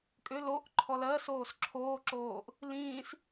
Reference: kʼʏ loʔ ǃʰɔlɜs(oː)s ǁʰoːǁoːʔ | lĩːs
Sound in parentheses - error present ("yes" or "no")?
no